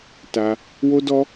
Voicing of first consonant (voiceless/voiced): voiceless